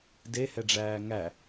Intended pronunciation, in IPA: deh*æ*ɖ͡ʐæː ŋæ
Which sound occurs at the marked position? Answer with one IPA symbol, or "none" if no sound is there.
ɛ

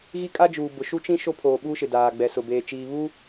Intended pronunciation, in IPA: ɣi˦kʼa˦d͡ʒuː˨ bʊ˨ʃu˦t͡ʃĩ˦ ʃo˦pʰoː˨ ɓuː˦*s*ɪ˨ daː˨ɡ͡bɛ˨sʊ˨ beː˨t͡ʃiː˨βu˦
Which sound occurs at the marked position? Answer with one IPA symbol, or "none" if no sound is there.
ʃ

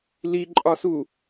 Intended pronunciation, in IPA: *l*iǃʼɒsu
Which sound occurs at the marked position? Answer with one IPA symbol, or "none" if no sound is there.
l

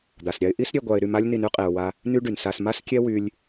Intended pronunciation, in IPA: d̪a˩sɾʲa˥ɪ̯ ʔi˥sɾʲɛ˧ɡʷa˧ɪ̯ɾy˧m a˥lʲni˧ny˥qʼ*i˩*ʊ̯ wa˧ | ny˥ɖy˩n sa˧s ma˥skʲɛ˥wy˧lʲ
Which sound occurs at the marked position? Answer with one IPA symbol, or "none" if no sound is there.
i˩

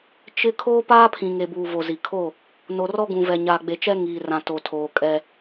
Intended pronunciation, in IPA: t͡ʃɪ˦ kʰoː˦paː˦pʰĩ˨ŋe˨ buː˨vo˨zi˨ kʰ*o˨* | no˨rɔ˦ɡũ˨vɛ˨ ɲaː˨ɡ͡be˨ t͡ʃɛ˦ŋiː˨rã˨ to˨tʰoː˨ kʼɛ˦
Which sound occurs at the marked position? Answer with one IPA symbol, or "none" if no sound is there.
o˦˨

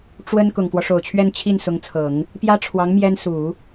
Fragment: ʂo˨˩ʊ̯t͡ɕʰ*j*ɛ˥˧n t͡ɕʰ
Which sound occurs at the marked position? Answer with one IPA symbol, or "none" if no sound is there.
ɥ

